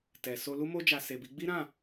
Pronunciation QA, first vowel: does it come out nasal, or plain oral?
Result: oral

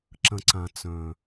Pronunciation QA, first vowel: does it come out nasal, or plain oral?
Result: nasal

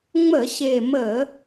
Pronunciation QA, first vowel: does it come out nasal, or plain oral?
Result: oral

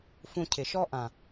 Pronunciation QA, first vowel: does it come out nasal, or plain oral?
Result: nasal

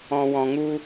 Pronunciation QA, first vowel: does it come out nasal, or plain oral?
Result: nasal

